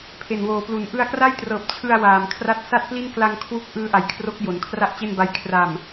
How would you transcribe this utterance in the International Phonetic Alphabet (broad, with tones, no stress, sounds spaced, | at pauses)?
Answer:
pʰ e˨˩ n w oː˩˦ p l u˩˦ n ʔ ɯ˧ a̯ k r a˥˩ j t r ɤː˨˩ p̚ t͡ɕʰ ɯ˧ a̯ w aː˨˩ m kʰ r a˥˩ t̚ s a˥˩ t̚ p l i˥˩ n k l a˧ ŋ kʰ w u˦˥ k̚ ʔ ɯː˦˥ ʔ a˩˦ j kʰ r o˦˥ k̚ j o˩˦ n kʰ r a˥˩ ʔ t͡ɕ e˥˩ n b a˧ j kʰ r a˨˩ m